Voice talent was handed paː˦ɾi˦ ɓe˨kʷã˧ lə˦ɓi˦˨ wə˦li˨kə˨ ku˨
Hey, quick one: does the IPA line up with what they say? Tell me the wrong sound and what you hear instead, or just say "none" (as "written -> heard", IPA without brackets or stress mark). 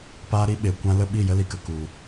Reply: w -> j